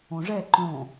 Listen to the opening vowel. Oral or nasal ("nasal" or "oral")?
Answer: nasal